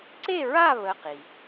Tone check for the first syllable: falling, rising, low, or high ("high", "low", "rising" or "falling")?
falling